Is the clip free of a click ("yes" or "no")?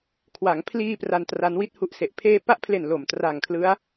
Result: yes